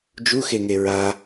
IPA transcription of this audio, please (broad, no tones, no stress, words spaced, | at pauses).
d͡ʒuxeŋe ɹa